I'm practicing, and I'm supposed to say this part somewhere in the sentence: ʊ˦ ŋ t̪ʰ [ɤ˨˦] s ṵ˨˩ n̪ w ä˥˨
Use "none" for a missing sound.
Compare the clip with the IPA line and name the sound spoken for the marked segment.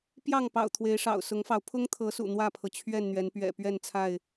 ɤ˨˦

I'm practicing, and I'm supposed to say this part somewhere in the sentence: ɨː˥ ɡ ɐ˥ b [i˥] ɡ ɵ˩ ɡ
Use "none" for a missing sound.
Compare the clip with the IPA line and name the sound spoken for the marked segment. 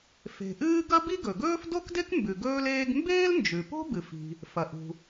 i˥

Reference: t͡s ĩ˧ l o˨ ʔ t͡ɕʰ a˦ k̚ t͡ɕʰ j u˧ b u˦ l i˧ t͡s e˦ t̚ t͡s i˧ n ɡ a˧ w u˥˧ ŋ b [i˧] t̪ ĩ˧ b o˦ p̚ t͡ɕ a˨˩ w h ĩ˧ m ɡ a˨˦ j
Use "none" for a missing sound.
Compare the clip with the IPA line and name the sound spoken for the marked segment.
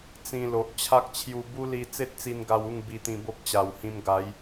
i˧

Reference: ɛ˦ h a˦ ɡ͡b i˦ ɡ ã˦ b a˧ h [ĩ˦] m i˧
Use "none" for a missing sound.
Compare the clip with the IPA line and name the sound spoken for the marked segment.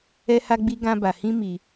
ĩ˦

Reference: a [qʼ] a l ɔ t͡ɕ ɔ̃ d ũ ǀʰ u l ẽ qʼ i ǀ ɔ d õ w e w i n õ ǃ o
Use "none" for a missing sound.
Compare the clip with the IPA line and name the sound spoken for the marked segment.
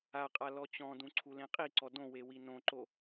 qʼ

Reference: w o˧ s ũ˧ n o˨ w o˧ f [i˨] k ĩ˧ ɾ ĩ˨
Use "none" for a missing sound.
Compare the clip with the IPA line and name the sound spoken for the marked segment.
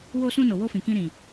ĩ˨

